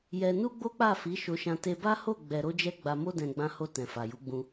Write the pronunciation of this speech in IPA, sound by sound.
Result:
j ɛ˧ n u˦ ɡ͡b o˦ k͡p a˦˨ f i˨˦ ʃ o˧ ʃ ã˧ t e˧ b a˦ h o˦˨ ɡ͡b ɛ˨ ɾ o˧ d͡ʒ ɛ˧ ɡ͡b a˧ m o˦ d ɛ̃˧ ɡ͡b ã˧ h o˧ t ɛ̃˨ f a˨ j u˨˦ ɡ͡b ũ˧

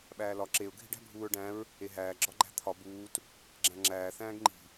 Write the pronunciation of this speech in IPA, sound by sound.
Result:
ɓ æː l ɒ ǁ e ʊ̯ ɡʱ i̤ ɖ æ̤ bʱ uː ɹ ɖ æ̃ ɹ | e ɦ æː ɡ͡ǁ ɒ ɡ͡ǃ æ̤ t̪ʰ ɒ b uː t | ɡ͡ǁ æ̃ ŋ͡ǁ æː θ æ̃ː ɡ ŋ͡ǃ i̤

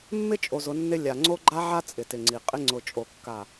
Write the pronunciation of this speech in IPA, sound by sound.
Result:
mː ɪ˦ t͡ʃʼ o˨ z ʊ˨˦ nː ɪ˦ lʲ a˨ ŋ͡ǀ o˦ ɡ͡ǃ a˦ ʕ a˦ t͡sʼ ɪ˨ t ɪ˨ ŋ͡ǀ i˨ qʼ ɪ˦ ŋ͡ǀ ʊ˨ t͡ʃʼ o˨ kː a˨

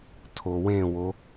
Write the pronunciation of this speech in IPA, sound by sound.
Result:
tʰ o w ẽ w o

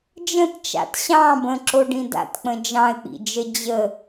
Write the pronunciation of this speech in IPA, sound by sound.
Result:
d͡ʒ ə̃ t t͡ʃ a̰ t ɕ ɑ̃ b ə̃ ǁ o ɖ ĩ d a̰ t k͡p ə̃ d͡ʒ ɑ̃ ɪ̯ k͡p ḭ d͡ʒ ə d͡ʑ ə

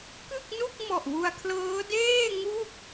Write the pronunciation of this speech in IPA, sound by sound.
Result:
k ɯ˥˩ k̚ n u˥˩ k̚ m ɔ˨˩ ʔ w u˧ a̯ kʰ l ɤː˦˥ d eː˥˩ ŋ u˥˩ k̚

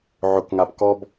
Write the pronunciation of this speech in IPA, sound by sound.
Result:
ʕ ʊ k ŋ a p k ɔ b

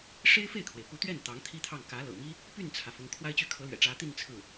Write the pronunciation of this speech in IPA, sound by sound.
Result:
ʂ e˥ ɪ̯ f e˥˩ ɪ̯ kʰ w e˩ ɪ̯ p u˧˥ t̪ ɥ ɛ˥˩ n t̪ ɑ˧˥ ŋ t̪ʰ i˥ t̪ʰ ɑ˥˩ ŋ k ä˧˥ l ɤ̰˨˩ m i˥ | p y˥˩ n t͡sʰ ä˩ f ʊ˧˥ ŋ kʰ w a˥ ɪ̯ t͡ɕ y˥˩ kʰ ɤ˧˥ l ɥ ɛ̰˨˩ ʈ͡ʂ ä˧˥ t̪ i˥˧ n t͡sʰ ɹ̩˥˩

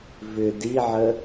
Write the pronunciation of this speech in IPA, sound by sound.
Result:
v ʏ d i ʕ ə

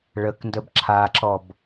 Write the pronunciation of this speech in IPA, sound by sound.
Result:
ɭ ə k n d ə b ǁʰ a ǁ ɔ b

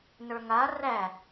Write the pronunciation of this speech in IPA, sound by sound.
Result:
n ə˞ ŋ a r æ

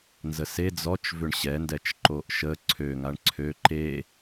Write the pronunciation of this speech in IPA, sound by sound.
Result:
n z ə s e d͡z ɔ t͡ʃ v ʏ ɳ ɕ ɛ n d ɛ t͡ʃ ǃ o ʔ ʃ ə ǀʰ ø ŋ a ɳ ǀʰ ø ǃ e

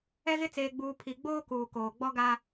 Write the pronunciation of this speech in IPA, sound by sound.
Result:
ɛ˦ ɣ ɪ˦ t͡s eː˦ ɡ͡b uː˦ pʰ i˨ ɡ͡b oː˦ k uː˨ k oː˨ ɡ͡b ɔ˦ ɡ a˦

